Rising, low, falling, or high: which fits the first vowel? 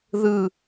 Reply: falling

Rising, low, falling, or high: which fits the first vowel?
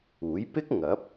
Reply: rising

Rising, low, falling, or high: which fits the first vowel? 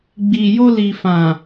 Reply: low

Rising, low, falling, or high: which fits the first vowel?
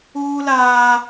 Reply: high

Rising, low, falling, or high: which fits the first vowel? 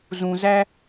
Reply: low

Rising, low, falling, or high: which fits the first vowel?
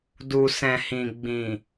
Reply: low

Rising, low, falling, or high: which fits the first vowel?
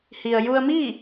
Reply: low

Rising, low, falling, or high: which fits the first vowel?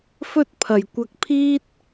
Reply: high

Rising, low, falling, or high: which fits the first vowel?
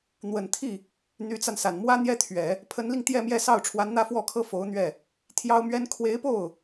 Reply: low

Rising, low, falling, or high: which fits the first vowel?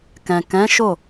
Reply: low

